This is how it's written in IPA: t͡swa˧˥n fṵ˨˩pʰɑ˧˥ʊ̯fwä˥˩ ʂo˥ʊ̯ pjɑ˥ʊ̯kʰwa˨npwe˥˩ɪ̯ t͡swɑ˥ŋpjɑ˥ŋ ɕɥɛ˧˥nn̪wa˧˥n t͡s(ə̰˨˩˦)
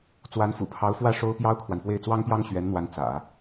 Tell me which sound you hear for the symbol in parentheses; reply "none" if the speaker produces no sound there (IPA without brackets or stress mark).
ä̰˨˩˦